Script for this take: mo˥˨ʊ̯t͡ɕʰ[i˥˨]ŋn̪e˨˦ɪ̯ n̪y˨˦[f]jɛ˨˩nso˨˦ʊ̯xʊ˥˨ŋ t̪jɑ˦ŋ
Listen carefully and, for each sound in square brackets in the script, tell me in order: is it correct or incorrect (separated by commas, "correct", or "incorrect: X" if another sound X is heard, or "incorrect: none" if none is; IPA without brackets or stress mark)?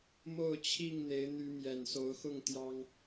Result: correct, incorrect: m